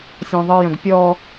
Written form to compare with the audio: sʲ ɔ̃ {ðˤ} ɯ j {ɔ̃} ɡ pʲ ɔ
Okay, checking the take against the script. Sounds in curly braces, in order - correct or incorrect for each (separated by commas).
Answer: correct, incorrect